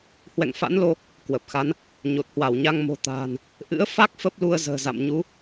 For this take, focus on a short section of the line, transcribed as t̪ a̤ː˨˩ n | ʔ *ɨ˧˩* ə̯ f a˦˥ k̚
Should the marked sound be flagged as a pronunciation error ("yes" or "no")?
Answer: yes